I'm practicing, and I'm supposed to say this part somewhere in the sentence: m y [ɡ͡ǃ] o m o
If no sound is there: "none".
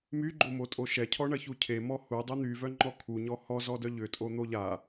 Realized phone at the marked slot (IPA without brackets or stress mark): ɡ͡ǃ